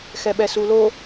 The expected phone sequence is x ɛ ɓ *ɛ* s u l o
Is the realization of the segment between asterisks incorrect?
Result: no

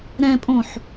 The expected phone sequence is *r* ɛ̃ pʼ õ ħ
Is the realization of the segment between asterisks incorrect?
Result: yes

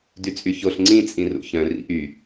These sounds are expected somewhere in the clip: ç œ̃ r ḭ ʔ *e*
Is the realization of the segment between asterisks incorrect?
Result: yes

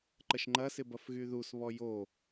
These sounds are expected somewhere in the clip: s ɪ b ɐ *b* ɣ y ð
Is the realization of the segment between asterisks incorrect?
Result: yes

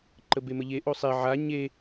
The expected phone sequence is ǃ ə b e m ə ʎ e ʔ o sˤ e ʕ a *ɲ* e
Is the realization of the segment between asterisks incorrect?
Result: no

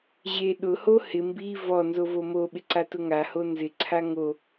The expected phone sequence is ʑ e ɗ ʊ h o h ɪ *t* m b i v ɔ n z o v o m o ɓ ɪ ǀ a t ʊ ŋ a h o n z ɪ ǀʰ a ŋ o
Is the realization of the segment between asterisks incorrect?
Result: yes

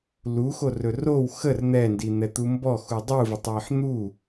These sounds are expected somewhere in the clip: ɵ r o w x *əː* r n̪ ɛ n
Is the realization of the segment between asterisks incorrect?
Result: yes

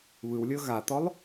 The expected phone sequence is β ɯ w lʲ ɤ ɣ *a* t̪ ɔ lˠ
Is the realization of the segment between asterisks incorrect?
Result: no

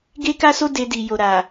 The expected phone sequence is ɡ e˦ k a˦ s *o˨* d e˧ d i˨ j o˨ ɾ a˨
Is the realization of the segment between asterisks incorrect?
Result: yes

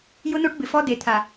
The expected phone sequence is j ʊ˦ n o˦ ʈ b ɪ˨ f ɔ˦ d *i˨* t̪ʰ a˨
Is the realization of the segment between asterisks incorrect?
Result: yes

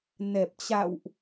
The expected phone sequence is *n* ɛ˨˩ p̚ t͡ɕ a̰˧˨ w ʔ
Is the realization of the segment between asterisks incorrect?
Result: no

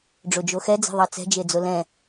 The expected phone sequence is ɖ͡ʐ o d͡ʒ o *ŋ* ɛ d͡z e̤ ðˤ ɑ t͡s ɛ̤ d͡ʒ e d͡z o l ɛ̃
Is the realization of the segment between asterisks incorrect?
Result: yes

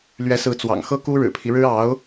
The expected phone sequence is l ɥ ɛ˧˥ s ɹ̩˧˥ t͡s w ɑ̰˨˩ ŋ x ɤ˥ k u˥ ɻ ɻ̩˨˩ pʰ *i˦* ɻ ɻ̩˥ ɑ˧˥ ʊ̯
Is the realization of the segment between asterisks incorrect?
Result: no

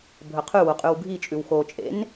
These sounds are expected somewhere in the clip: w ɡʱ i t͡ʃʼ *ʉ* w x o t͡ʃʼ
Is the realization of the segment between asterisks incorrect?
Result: no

